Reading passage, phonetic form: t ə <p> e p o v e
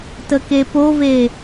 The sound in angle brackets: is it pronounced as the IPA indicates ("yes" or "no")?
no